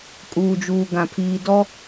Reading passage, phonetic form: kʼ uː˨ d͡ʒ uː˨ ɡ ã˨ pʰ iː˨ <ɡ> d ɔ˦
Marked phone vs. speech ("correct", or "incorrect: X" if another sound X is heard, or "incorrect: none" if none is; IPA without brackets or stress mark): incorrect: none